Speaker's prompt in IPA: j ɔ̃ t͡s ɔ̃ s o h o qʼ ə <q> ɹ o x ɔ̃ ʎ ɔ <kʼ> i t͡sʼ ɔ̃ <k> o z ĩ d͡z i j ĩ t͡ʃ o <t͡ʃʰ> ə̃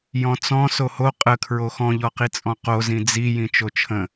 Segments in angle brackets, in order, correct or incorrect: incorrect, incorrect, incorrect, correct

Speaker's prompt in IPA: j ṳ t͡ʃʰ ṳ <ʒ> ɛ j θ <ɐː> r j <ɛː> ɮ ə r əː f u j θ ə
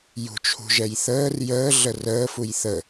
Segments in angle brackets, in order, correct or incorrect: correct, incorrect, incorrect

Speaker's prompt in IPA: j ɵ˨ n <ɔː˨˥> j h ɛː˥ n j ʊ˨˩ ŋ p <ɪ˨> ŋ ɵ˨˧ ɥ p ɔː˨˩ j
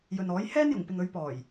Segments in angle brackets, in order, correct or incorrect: correct, correct

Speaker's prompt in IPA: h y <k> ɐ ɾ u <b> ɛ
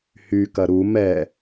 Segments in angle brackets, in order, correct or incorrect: correct, incorrect

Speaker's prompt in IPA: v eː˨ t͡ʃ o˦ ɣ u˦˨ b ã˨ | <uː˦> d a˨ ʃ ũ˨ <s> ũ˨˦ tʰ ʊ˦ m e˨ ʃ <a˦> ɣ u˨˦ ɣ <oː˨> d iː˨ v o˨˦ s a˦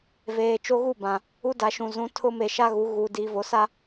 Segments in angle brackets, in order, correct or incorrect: incorrect, incorrect, correct, incorrect

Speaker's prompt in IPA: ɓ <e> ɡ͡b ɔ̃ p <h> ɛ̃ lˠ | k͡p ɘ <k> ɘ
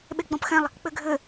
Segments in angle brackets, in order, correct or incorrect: correct, incorrect, incorrect

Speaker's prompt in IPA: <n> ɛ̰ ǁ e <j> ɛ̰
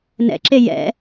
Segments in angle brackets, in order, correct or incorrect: correct, correct

